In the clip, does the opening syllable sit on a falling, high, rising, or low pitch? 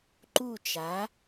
falling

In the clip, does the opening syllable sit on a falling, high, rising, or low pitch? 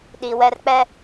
low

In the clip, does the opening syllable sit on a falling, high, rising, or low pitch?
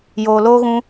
low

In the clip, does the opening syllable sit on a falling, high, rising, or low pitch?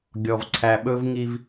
low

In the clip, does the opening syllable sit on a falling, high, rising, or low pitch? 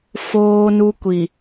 high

